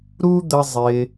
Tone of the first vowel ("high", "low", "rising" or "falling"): high